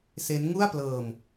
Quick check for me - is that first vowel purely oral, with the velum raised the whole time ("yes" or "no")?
yes